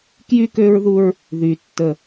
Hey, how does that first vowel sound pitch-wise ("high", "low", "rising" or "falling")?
high